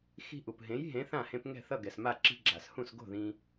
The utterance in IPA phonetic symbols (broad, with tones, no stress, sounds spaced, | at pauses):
x i̤˧ ʔ u˩ p ɦ ẽ˩˥ j ɦ ẽ˩˥ θ ã˥˩ h ẽ˧ p ŋ ɛ̤˥˩ θ ʌ˥˩ ɡ ɛ˩ s m a˥˩ ǁ i̤˧ ɡ͡ǁ a˩ s h ũ˥˩ s ɡ o̤˥˩ ð ĩ˧